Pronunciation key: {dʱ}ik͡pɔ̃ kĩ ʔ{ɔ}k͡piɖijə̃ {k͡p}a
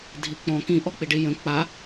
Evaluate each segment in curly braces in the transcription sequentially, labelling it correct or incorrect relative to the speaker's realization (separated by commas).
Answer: correct, correct, correct